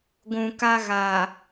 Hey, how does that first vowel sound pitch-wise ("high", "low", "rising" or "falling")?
low